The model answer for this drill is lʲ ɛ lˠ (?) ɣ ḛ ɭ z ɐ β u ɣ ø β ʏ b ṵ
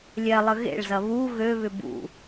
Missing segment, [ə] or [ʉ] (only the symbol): ə